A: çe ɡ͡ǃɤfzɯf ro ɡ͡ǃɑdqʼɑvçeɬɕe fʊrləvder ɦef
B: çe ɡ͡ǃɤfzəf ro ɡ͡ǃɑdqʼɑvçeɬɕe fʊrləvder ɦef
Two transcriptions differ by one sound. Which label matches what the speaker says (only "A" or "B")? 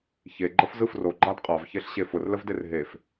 A